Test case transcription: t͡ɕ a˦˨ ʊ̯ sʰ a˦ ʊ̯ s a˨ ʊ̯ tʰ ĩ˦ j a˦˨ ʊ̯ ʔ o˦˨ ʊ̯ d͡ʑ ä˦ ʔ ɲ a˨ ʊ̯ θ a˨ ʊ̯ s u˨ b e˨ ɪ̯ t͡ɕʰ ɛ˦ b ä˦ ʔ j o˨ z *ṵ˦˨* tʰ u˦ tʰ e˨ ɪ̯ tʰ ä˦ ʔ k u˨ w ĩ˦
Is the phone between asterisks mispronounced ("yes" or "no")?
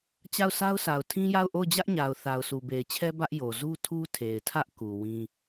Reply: yes